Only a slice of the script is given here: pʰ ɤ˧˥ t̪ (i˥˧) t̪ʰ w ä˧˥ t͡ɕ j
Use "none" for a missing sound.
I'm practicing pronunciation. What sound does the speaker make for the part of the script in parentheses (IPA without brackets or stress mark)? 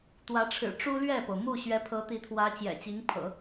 i˧˥